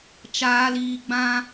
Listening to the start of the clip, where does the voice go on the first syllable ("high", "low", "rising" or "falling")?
high